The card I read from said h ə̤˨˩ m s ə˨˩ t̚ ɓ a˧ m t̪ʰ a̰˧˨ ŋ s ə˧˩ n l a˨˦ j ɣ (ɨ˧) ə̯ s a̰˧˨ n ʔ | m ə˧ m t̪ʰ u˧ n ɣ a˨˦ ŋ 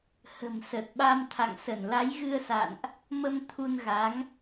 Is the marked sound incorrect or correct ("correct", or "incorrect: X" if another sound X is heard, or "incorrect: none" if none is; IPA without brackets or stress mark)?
correct